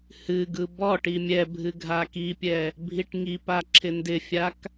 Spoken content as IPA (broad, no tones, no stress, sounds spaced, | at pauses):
h ɨ ɡ ɯ b ɔ ʈ i mʲ ɛ bʱ ɨ ɡʱ a k i pʲ ɛ | bʱ i ʈ ŋ i p a ǁʰ ɪ n d ɪ fʲ a k